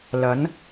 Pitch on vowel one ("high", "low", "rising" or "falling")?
rising